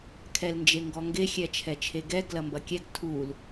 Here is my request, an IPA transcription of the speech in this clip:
kʰ ɛ l n d͡ʒ e ŋ ɡ ɔ ŋ ɡ e xʲ ɛ t͡ʃʰ ɛ t͡ʃʰ e ɡ ɛ ɡ l ɐ m b ɐ kʲ ɛ ɡ tʰ u l

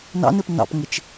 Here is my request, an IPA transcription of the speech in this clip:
n ɑ̰ n ɪ p n ɑ̰ p ŋ ɪ t͡ʃ

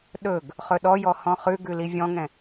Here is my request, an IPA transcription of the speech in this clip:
ɗ ɵ ɡ | χ ɵ ɗ ɔ j ɔ h ɔ̃ χ ʉ ɡ ʉ l i vʲ ɔ̃ ŋ ɛ̃

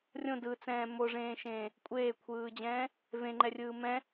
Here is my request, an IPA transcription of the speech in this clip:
rʲ õ d ɯ t͡s ɛ̃ː m o ʐ ẽː ʃ ẽː | kʷʼ eː kʷʰ ɯː d͡ʑ ɛ̃ː | v ẽ ŋ͡ǃ ɛ rʲ ɯː m ɛ̃

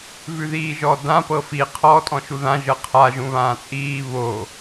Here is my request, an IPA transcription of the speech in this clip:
v ʉ ð iː ʒ ɔ d ã p ɤ f i qʰ ɔ tʼ ɔ̃ ʃ u ð ã ʒ ɤ qʰ a ʒ ũ β ãː t͡sʼ iː β o

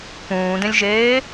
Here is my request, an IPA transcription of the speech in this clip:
p ũː d ẽ lʲ ʒ eː

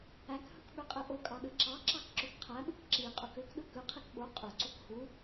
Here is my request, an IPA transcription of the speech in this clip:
æ k h ɯ k ɓ ø qʼ e ʔ o kʼ ɑ ɗ ɯ ǁ ɑ ǁ ɑ k ǁ ø k qʰ æ ɓ ɯ k ǁ i qʼ u k ø k ɗ ɯ k ɯ qʰ i k ɓ o qʼ ø ǀ u k h u

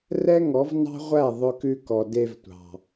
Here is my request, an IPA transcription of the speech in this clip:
r ɛ˦ ŋ ɔ˨˦ v n ɑ̤˦ ʁʷ æ˦˨ ðˤ ɵ˧ k ʉ˧ k ɔ˨ d e˧ v tʷ ɑ̤˨

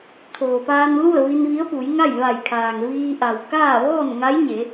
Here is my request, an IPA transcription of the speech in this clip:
t̪ʰ oː˩ p aː˧ n l u˥˨ ə̯ ʋ i˧ n ʋ i˧˥ ə̯ p u˩˧ j ŋ a˥˨ j ʋ a˧˩ j kʰ aː˩ ŋ ʋ iː˧ ʔ a˩ w k aː˥˨ ʋ ɔː˥˨ n ŋ a˧˥ j ɲ e˩˧

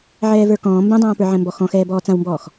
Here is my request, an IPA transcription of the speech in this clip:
ʕ ɛː v ə˞ k ɔ̃ː m b ɛ̃ dˤ ãː p ə˞ ʕ ɛ̃ m b ɔ x ɔ̃ x ɛː b ɔː t͡s ã w m b ɔː x

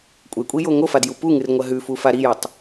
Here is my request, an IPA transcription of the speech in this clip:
kʷʼ e kʷʼ i j o ŋ o f a d j u p u ŋ ɨ r ŋʷ ɐ ɦ ʉ f u f a ɾ i j o tˤ

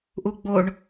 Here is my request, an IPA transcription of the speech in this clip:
ʔ u ɡ͡b o ɳ

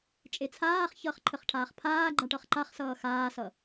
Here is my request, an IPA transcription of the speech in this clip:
t͡ʃʼ e t͡sʰ aː χ ç ʌː χ ǃʰ ə χ ʈʰ aː χ pʰ aː ɡ͡ǃ a ʈ ʌ χ ǃ a χ s ʌː x aː s ʌ

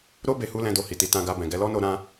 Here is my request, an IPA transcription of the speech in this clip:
ɾ o˦ b e˧ h u˦ l ɛ̃˧ d o˧ h i˨ t i˧ t ã˧ ɡ a˧ b ɛ̃˨ ɡ ɛ˧ l ɔ˦ n o˧ ɾ ã˧

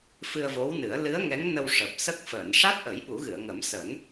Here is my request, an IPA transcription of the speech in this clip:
f ɨ˧ ə̯ v o˧˥ w n ɨ˨˩˦ ə̯ l ɨ˧˥ ə̯ ŋ ɛ˧˥ ŋ n ə˧ w ʂ əː˨˩ p̚ s ə˦˥ k̚ f əː˨˩˨ n ʂ a˦˥ t̚ ʔ ə˨˩˦ j ɓ u˨˩˦ ɣ ɨ˨˩˨ ə̯ ŋ ə˨˩˦ m s əː˨˩˦ n

